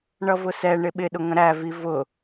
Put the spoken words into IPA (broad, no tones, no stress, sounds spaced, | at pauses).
ɳ ʌ v ʊ s ɛ ɳ ɪ ɓ ɪ ɗ ʊ ŋ ə̃ ɾ æ v i v ʊ